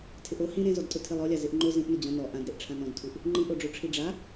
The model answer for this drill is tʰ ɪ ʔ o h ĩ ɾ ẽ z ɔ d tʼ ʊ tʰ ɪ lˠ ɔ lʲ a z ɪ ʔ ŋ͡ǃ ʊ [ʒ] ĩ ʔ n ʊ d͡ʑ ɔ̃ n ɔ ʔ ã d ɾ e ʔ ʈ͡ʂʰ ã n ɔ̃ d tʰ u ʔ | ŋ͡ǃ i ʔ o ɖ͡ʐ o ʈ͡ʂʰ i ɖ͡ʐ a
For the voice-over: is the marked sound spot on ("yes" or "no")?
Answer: no